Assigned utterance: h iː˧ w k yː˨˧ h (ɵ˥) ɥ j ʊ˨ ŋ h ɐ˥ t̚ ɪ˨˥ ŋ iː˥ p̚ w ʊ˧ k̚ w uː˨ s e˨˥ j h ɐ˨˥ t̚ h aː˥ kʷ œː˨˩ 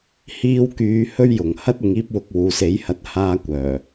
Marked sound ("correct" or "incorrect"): correct